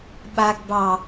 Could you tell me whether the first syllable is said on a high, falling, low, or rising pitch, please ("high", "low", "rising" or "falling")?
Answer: low